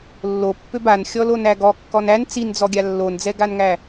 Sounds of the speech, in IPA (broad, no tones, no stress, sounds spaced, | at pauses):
lː o pː ø b a n xʲ ɔ l o n æ ɡ ɔ kː ɔ n æ n t͡s i n d͡z ɔ ɡʲ a lː o n d͡z ɛ ɡ a n ŋ æ